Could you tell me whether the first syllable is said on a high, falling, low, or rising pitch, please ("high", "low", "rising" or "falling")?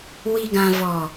low